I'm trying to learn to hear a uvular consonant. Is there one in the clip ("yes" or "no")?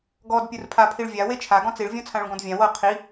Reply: yes